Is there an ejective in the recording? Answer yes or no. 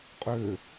yes